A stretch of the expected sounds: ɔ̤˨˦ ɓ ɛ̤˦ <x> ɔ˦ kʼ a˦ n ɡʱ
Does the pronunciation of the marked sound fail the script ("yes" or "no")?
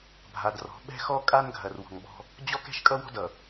no